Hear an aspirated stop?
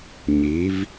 no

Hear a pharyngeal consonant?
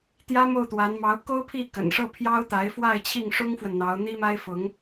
no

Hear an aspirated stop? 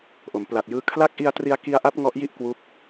yes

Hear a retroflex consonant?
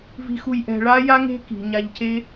yes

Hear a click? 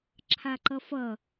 yes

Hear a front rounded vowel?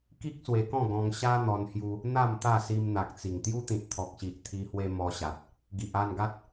no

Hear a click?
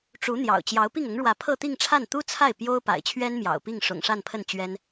no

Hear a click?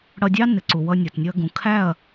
yes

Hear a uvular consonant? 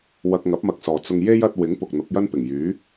no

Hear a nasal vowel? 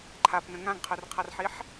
yes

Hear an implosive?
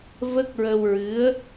no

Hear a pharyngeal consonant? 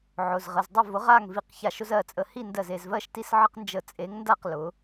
yes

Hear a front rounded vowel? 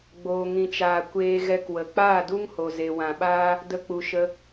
no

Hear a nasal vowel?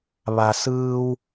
no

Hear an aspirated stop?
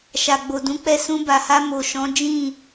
no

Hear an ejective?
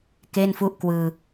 no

